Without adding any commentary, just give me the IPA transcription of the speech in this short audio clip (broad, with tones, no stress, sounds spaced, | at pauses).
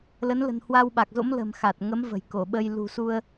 l ə˨˦ n l ə̤˨˩ n h w a˧ w ɓ a˨˩ k̚ z o̰˧˥ m l ə̤˨˩ m x a˨˩ t̚ ŋ ə˨˦ m v ə̤˨˩ j k o˧˩ ɓ ə˧ j l ṳ˨˩ s u˧ ə̯